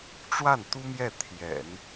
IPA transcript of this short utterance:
ʈ͡ʂ w a˥˩ n t̪ u˥ m j ɛ˥˩ t̪ʰ j ɛ̰˨˩˦ n

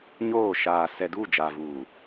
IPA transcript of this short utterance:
ɲ oː˦˨ ʃ aː˨ s ɛ˨ d uː˦˨ d͡ʒ a˨ v uː˨

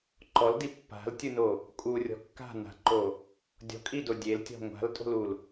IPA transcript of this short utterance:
ǃ ɔ l d i pː a̤ l tʲ ɯ n o | kʼ u rʲ ɔ̤ kː a̤ n a̤ ǃ o | dʲ ɔ̤ kʼ i d o dʲ e l tʲ ɔ̤ ŋʷ a̤ l tʼ o̤ l u l

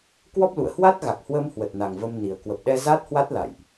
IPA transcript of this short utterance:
k w ɔ˦˥ p̚ l ṵ˧˨ ə̯ h w a˦˥ t̚ ɣ a˨˩ k̚ h w əː˧ m h w ə˨˩ t̚ n a˨˩ ŋ v ə˧ m n i˨˩ ə̯ k w ə˨˩ p̚ ɗ ɛ˧ z a˦˥ t̚ h w a˦˥ t̚ l a̰˧˨ j ʔ

